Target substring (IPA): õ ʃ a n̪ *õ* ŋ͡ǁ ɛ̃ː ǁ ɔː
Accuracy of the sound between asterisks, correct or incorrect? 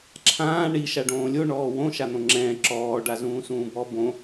correct